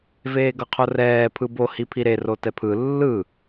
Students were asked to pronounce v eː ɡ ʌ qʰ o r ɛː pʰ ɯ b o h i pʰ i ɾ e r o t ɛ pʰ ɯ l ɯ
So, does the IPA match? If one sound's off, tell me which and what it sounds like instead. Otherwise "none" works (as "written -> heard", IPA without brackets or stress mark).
l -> lː